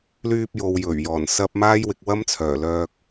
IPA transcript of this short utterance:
l yː˧ p̚ j o˨ w j ɵ˨˩ ɥ j ɔː˨˩ n s ɐ˧ p̚ m aː˥ j w ɪ˨˥ k̚ w ɐ˥ m t͡sʰ œː˨˩ l œː˧ k̚

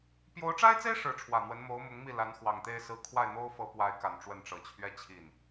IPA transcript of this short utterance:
p j o˧˥ ʊ̯ ʈ͡ʂ a˥ ɪ̯ t͡s e˥ ɪ̯ ʂ ɻ̩˧˥ ʈ͡ʂʰ w ä˨˩ n̪ w ə˧˥ n m o˧˥ ʊ̯ m ʊ˧˥ ŋ m i˥˩ l a˧˥ n x w ɑ˨˩ ŋ t̪ e˥˧ ɪ̯ s ɹ̩˥˧ kʰ w a˥˩ ɪ̯ n̪ o˥ ʊ̯ f ɤ˧˥ p w a˧˥ ɪ̯ k a˨˩ n ʈ͡ʂ w ə˥˩ n ʈ͡ʂ ɤ˨˩ t͡ɕʰ ɥ ɛ˥ t͡ɕʰ i˥˩ n

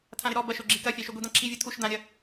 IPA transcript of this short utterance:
tʰ ã ɾ ɪ ɾ ɔ b ɐ ʃ o ɡ͡ǁ i k ɐ fʲ a ʃ y ɡʷ i d̪ ã ǁʰ i vʲ o tʰ u ʃ d̪ ã ɾʲ ɐ

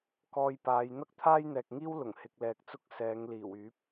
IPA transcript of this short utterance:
k ɔː˧ j p aː˨˧ j n̪ ɐ˥ k̚ t̪ʰ aː˥ j n̪ ɛː˨ k̚ ŋ iː˥ w l ʊ˨˩ ŋ h ɪ˨˥ k̚ l ɛː˨ k̚ t͡s ʊ˥ k̚ s ɛː˨˧ ŋ l iː˨˩ w yː˨˥ p̚

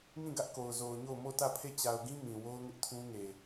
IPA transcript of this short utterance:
ŋ ĩ˦˨ ɡ ä˦ ʔ k o˨ ʊ̯ z o˨ ʊ̯ ɲ o˦˨ ʊ̯ m o˦˨ t ä˦˨ pʰ e˦˨ t͡ɕ a˨ ʊ̯ ɡ ĩ˦ m ĩ˨ w o˦ ʊ̯ ŋ ɪ˦ ʔ tʰ ũ˦ ŋ e˨

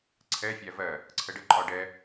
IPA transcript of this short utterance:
ǀʰ ɛ fʲ æ v ɜ | ǀʰ ə ɖ ə ǃʼ ɒ ɖ ɛ

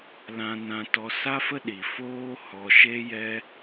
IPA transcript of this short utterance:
l ã˧ n ã˧ t ɔ˧ s a˦ f ə˦ ɗ i˨ f oː˦ h ɔ˧ ʃ e˦ j ɛ˦

